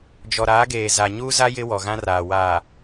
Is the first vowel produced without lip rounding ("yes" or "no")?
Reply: no